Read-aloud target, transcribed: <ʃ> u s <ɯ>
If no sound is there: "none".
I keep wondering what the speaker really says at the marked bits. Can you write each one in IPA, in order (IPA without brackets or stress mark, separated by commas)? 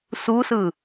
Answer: s, ɯ